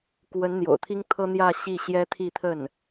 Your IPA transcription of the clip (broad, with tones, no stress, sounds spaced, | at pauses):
k w ə˧˥ n n̪ j o̰˨˩ ʊ̯ t̪ʰ i˥ ŋ t̪ʰ ɤ˥ n̪ j ä˥˧ ɕ i˥˩ ɕ j ɛ˥ t̪ʰ i˥˧ t̪ʰ ə˥˩ n